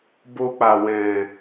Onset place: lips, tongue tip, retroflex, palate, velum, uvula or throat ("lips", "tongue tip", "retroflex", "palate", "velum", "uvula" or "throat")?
lips